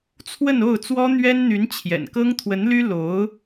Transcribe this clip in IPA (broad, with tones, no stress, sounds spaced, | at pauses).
t͡sʰ w ə˥˧ n o˥˩ ʊ̯ t͡s w ɔ˥ n̪ ɥ ɛ˥ n n̪ y˧˥ n t͡ɕʰ j ɛ̰˨˩ n k ɤ˥ ŋ t̪ʰ w ə˧˥ n l y˥ l o˧˥ ʊ̯